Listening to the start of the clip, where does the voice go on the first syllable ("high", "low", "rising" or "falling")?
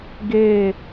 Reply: falling